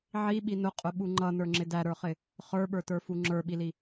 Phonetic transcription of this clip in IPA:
ʕ i ɓ i n ʊ qʼ ʊ ɓ u ŋ͡ǃ ʌ n ə˞ ŋ͡ǁ ɪ d æ ɾ ə˞ χ ɪ | χ ə˞ ɓ ə˞ t ə˞ f u ŋ͡ǁ ə˞ ɓ i l i

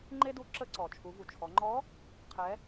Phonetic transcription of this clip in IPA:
ŋ͡ǃ e˥ d u˧˥ ǁ ə˧ ǀ ɔ˩ t͡ʃʰ u˩˧ v u˩ t͡ʃʰ ɔ˩˧ ŋ͡ǃ ɔ˧˥ | qʰ ɛ˩˧

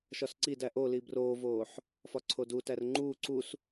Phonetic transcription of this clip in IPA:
ʃ ɒ s ǀ i d æ ʔ o l i b r oː v oː ħ | f ɒ ǀʰ o d u t æ r ŋ͡ǃ uː ǀ u s

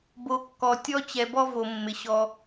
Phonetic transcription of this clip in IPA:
b o˨ kː ɔ˨ tʲ ɔ˦ t͡ɕ ɛ˨ b ɔ˦ v o˨ mː ɪ˨ ɕ ɔ˦

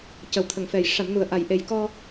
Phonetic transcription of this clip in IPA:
c ə˨˩ w t̪ʰ ə˨˩ ŋ f ɛ˨˩ j ʂ a˨˩˨ m n u˨˩ ə̯ ʔ a˨˩ j ʔ e˨˩ j k ɔ˧

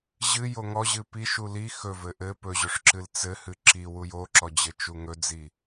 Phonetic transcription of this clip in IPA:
ʑ ɨ j o ŋ ɔ ʑ ɨ p i ʃ u l i x ɵ v ɘ ʔ ɘ p ɵ ʑ ɵ ʂ ǁ ɨ l t͡s ɘ h ɨ ǁ i w u j o ǁ ɔ d͡ʑ ɘ t͡ʃ u ŋ ɵ d͡z i

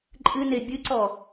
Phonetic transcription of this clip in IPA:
ǃʼ ɨ n e bʲ ɨ ǀ ɔ

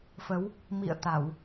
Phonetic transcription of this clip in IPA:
f ə˨˦ w | m ḭ˧˨ ə̯ t̪ a˧˩˨ w

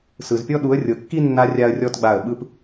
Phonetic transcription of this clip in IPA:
s ɯ˨ z pʲ ɔ˦ ɗ u˨˦ ə̯ rʲ ɤ˨ kː i˦ nː a˧ rʲ a˦ ə̯ rʲ ɔ˦ t ɡ͡b a˦˨ ə̯ ɓ ɯ˦ p

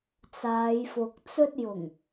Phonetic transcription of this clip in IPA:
t͡s aː˨˧ j f ʊ˨ k̚ t͡s ɵ˥ t̚ j ʊ˨˩ ŋ

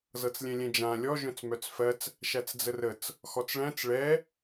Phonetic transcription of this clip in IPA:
z ɤ t͡s lʲ ɛ̃ lʲ ɛ̃ d͡ʒ ã lʲ ɔ ʒ œ̃ t͡s m œ t͡s f ɜ t͡s | ʃ æ t͡s d͡z ə r ə t͡s | x ɔ t͡s ɭ æ̃ t͡s ɭ ɛ

